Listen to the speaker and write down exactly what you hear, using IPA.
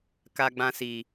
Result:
k a˧ ɡ͡b ã˧ s iː˨

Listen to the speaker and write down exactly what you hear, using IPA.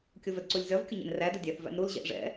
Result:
kʲ o v œ d ǀ u lʲ z œ v kʲ ʊ ɲ ɛ̰ n r æ d ʊ dʲ æ θ v æ̰ n ɾ u l ʑ ɛ̰ ʔ ʐ ɛ̰

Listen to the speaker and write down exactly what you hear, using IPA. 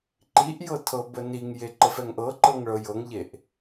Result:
ǃ i ʔ j ɤ tʰ ɤ b ə n i ŋ j e ǃ ə f ɛ ŋ ʔ ɤ ǃ ɤ ŋ ɭ ɤ j ɤ ŋ ʎ e ʔ

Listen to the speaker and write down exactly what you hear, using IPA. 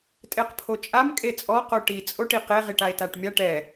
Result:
tʼ e q pʰ o t͡ʃʼ a m kʼ e t͡sʼ ɔ q o ʈ i t͡sʼ o ʈ i q e ʁ i ʈ a e̯ t a ʈ mʲ a ʈ ɛ

